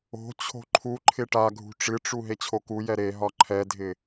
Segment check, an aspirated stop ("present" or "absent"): present